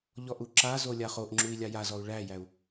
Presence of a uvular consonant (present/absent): present